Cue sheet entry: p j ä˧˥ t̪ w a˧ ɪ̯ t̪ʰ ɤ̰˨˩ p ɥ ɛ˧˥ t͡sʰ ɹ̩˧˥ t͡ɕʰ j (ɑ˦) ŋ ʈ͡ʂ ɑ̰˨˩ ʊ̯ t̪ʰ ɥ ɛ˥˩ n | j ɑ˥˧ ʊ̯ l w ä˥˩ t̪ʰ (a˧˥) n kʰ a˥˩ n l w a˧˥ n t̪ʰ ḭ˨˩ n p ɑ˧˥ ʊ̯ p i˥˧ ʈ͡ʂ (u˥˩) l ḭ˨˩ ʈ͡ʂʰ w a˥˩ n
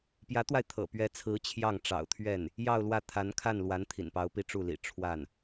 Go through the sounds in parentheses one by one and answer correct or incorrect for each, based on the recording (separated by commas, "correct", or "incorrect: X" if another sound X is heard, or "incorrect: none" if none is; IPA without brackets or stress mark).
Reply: incorrect: ɑ˥˩, correct, correct